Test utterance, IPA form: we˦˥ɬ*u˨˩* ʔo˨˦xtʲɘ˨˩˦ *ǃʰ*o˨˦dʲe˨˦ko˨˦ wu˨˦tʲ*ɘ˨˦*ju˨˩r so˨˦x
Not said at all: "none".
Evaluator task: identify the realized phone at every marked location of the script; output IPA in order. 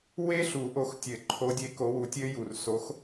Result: u˨˩˦, ǃʰ, ɘ˦˥

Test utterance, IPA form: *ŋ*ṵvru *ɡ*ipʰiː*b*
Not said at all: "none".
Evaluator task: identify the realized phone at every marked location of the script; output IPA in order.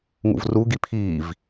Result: ŋ, ɡ, v

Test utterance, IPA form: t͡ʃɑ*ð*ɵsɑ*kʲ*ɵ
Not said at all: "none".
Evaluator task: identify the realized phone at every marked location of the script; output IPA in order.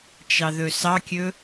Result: ð, kʲ

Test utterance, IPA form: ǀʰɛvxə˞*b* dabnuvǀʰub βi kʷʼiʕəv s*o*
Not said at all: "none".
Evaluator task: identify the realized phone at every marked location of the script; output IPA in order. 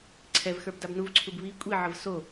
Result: b, o

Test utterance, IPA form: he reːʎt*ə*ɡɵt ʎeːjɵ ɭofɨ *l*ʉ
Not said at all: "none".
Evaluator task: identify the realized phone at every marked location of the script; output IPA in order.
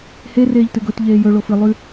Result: ɨ, lˠ

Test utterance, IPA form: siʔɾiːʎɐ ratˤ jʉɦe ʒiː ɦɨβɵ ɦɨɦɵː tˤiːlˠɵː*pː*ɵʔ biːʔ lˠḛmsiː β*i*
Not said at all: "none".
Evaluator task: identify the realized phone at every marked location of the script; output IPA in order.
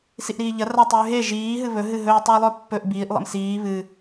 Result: pː, ɨ

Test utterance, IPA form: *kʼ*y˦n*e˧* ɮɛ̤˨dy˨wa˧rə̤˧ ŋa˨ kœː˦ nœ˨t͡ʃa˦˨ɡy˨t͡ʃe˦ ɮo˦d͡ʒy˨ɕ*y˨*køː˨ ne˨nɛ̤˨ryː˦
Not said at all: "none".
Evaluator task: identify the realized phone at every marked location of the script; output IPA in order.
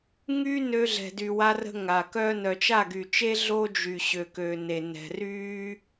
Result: ŋ, ø˧, ø˨

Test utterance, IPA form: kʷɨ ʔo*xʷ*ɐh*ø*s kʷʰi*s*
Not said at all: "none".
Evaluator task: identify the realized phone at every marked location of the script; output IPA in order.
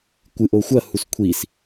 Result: xʷ, u, s

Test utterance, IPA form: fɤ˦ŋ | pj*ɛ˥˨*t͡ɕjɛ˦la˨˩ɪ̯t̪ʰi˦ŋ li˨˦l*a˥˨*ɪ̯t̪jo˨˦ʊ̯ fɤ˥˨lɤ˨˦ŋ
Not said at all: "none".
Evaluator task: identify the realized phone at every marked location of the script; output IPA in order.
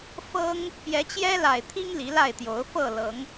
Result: ɛ˨˦, a˥˨

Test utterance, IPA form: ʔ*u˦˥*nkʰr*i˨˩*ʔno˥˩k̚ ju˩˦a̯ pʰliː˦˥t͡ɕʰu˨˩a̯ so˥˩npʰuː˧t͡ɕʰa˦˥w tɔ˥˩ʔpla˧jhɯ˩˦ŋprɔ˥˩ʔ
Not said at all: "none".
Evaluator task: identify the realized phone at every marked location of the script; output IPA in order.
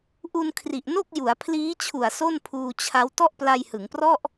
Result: u˧, i˨˩

